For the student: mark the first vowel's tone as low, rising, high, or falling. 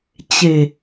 low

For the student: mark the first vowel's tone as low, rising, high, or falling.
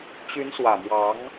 rising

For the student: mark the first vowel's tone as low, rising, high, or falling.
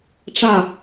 falling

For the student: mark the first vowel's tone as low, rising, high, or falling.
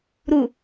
low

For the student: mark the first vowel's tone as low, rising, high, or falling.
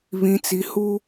low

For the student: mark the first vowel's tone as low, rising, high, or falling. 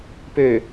low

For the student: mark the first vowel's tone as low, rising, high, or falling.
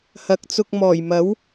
rising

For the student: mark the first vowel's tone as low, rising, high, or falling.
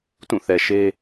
falling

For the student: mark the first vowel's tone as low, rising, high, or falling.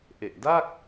low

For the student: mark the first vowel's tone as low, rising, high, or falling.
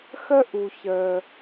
high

